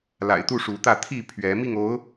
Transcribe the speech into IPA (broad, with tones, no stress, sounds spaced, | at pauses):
l a̰˨˩ ɪ̯ t̪ u˥˨ ʂ u˨˦ t̪ ä˥˨ t̪ʰ i˥˨ pʰ ɥ ɛ˨˦ m i˥˨ ŋ o˨˦ ʊ̯